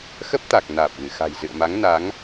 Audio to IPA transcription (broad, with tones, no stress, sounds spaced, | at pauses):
x ə˦˥ p̚ t̪ a˨˩ k̚ n aː˨˩ p̚ ɣ ɨ˧˩ x a̤˨˩ j z ɨ̰˧˨ ə̯ m a˨˦ ŋ n a˨˦ ŋ